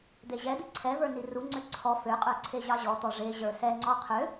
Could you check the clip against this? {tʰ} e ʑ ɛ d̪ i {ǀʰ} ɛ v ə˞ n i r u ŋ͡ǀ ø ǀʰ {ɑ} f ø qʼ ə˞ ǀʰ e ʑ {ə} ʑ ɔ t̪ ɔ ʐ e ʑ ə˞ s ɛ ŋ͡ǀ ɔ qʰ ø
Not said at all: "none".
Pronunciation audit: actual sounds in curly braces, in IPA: d̪, ǀʰ, ɔ, ɑ

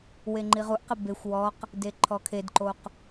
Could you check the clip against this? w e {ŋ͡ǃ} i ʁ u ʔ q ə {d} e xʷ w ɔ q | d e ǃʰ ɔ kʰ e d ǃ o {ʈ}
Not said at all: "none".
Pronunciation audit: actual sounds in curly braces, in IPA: ŋ͡ǃ, b, q

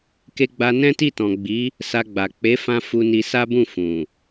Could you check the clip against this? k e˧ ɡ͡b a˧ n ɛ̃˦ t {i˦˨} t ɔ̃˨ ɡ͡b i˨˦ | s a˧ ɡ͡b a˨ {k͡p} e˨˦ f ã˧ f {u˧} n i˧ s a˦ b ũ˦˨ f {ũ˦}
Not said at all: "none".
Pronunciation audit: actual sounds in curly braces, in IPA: i˦˨, k͡p, u˧, ũ˨

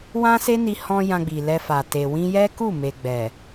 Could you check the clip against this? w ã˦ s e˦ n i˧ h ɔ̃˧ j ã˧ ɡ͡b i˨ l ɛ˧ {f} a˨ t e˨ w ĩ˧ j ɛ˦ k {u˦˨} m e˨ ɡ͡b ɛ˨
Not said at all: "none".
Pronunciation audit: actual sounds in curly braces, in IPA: f, u˦˨

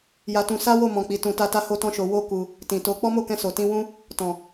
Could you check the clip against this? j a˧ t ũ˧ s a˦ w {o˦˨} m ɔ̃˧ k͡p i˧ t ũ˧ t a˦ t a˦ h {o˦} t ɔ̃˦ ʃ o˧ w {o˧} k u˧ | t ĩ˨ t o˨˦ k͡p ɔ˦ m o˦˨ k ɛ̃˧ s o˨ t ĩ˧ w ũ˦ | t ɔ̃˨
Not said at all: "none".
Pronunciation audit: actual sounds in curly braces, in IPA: o˦˨, o˦, o˦

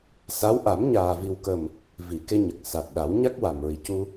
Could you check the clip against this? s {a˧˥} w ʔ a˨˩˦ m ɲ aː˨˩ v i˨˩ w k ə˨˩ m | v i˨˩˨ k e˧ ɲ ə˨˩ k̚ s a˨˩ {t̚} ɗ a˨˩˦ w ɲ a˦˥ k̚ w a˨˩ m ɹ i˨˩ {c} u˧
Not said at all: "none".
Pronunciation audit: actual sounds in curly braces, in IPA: a˧˥, t̚, c

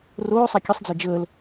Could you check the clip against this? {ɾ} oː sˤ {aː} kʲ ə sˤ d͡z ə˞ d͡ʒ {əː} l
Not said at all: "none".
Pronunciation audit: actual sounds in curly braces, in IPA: r, a, əː

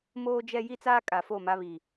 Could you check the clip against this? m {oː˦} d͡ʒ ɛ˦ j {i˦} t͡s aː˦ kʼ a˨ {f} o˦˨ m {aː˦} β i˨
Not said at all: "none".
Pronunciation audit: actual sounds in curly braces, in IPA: oː˦, i˦, f, a˦

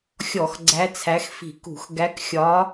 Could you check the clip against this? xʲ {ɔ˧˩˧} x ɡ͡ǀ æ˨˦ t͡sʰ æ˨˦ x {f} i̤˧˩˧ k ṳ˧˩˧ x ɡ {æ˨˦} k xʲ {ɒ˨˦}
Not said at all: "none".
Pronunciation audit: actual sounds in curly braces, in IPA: ɔ˧˩˧, f, æ˨˦, ɒ˨˦

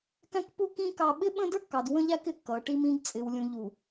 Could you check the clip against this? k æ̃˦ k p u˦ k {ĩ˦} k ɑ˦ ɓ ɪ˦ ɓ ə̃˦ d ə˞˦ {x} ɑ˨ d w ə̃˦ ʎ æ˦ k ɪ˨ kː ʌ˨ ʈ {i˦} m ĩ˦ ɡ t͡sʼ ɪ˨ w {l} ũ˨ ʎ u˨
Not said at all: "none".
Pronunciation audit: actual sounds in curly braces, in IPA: ĩ˦, kː, i˦, lʲ

